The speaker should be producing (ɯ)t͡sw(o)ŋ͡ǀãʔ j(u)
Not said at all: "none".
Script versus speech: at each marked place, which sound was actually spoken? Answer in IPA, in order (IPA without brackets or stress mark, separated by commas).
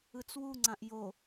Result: ɯ, u, o